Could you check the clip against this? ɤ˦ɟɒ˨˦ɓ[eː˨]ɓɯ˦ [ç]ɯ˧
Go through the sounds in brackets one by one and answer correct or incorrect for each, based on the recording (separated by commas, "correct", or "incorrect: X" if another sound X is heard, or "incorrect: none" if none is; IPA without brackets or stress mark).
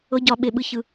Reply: incorrect: e˨, correct